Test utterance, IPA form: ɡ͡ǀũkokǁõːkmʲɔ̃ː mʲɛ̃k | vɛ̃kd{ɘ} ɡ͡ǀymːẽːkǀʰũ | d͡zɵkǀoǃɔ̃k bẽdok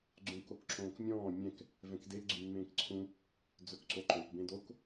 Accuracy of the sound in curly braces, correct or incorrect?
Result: incorrect